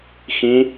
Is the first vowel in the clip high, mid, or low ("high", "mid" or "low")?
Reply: high